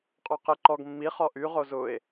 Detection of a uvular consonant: present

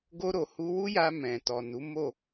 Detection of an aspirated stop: absent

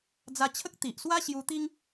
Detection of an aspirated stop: present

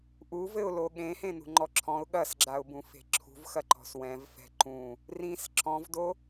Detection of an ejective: absent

